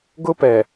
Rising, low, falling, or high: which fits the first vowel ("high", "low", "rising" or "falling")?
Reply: high